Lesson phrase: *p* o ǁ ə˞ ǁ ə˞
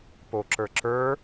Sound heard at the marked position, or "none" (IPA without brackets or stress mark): p